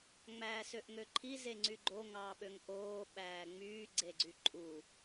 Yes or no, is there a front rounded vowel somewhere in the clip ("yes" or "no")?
yes